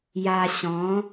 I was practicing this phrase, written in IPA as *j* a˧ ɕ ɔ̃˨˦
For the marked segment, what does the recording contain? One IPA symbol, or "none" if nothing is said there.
j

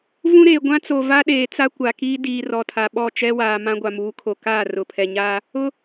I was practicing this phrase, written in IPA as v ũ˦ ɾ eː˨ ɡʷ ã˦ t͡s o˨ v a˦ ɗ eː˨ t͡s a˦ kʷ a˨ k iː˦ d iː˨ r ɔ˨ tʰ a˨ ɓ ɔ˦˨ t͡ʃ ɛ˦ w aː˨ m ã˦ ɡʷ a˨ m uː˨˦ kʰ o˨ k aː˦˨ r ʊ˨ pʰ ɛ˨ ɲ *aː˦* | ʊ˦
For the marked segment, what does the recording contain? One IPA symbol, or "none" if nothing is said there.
aː˦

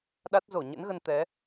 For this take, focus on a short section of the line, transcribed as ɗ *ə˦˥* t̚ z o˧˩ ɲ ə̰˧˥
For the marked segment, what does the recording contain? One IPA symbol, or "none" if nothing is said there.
a˦˥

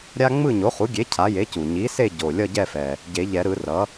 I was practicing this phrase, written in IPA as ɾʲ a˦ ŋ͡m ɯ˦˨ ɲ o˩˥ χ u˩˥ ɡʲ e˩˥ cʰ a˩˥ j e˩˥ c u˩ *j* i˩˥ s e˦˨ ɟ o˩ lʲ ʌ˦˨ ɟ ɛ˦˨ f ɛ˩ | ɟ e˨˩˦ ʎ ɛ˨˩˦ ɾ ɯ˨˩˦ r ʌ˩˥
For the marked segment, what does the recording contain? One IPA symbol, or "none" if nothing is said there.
ɲ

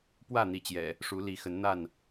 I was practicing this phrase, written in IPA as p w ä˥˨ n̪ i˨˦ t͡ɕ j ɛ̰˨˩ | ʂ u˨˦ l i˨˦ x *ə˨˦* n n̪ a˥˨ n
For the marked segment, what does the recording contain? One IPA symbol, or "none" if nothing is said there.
ə˨˦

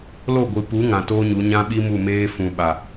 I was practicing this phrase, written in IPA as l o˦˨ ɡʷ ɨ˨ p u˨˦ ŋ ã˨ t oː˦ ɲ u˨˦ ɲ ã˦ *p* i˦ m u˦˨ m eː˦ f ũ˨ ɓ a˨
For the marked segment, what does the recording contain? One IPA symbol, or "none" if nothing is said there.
ɓ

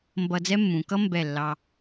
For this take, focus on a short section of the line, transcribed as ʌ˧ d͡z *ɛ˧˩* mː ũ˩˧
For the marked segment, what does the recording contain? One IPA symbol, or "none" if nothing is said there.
ɛ˥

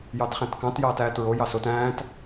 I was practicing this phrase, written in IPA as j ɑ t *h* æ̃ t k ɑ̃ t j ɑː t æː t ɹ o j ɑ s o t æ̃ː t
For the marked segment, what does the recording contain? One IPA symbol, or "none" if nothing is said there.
χ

